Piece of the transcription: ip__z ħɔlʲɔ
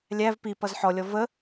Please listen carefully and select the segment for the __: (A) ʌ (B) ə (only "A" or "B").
A